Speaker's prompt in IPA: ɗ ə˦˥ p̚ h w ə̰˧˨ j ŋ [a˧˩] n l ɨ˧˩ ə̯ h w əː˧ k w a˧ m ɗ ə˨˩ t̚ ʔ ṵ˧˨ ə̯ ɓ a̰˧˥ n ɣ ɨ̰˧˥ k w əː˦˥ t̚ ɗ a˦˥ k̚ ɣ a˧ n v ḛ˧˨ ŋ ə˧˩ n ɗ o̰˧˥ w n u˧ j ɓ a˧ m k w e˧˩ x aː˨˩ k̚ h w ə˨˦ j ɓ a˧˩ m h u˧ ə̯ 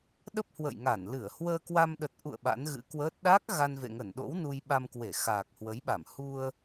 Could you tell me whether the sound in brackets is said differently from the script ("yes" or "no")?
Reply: no